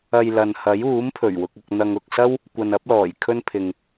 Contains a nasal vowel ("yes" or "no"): no